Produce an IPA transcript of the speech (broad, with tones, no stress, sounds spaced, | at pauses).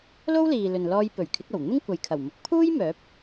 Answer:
l o˥ w l iː˨ l ɵ˨ n l ɔː˧ j p ɵ˨˩ ɥ kʰ ɪ˨˥ k̚ ɐ˨˩ w n̪ ɪ˥ ŋ kʷ ɐ˨ j kʰ ɐ˨˩ w m ʊ˨˥ k̚ pʰ uː˥ j m œː˨˥ p̚